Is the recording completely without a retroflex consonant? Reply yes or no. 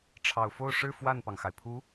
no